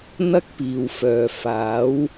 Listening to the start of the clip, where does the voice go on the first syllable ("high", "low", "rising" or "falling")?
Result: high